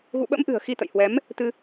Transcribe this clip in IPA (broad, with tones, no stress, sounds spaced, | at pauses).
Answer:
ɣ ṵ˧˨ ɓ ə̰˧˥ m ʔ ɨ̤˨˩ ə̯ x i˧ t̪ ə̰˧˨ j h w ɛ˨˦ m | t̪ ɨ˧